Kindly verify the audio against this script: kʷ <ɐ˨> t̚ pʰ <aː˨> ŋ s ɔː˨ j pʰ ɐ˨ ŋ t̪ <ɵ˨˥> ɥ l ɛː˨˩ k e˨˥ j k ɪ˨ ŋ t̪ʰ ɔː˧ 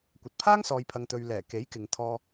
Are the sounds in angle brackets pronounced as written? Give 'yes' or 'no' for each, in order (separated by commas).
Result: yes, no, no